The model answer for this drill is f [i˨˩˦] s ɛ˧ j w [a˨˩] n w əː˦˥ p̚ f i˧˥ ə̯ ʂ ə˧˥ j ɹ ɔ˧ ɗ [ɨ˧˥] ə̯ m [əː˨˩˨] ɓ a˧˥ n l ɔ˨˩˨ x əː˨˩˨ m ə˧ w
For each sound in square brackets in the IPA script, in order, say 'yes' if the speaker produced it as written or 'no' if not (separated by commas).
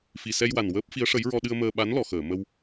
no, yes, no, no